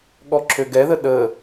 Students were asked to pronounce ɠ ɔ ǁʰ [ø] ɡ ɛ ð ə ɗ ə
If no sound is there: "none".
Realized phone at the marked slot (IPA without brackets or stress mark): ø